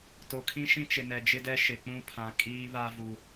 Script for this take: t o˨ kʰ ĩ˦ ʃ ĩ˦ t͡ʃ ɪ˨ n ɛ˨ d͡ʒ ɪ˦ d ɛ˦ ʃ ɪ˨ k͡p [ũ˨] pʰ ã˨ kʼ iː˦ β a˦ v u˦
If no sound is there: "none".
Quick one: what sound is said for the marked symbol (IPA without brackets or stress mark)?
ũ˦